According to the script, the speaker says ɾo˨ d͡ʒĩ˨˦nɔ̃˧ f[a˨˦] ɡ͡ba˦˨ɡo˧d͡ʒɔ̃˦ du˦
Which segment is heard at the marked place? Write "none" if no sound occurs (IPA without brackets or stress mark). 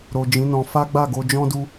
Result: a˦